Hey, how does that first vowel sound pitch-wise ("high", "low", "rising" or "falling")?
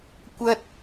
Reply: high